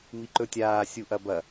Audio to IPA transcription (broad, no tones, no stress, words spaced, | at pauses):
miǃɵtʲaː sʲuʔɐbɐ